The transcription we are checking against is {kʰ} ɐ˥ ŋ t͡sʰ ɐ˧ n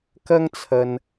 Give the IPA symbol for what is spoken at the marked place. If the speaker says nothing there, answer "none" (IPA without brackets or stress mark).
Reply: k